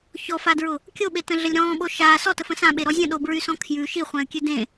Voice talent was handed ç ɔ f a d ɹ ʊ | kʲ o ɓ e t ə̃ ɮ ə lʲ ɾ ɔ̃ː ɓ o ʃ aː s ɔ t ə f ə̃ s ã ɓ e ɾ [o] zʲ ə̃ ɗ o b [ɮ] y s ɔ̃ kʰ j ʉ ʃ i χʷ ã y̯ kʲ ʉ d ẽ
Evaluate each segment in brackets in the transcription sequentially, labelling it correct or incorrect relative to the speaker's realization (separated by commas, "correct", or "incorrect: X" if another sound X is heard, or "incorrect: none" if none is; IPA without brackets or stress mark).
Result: incorrect: ɔ, incorrect: ɹ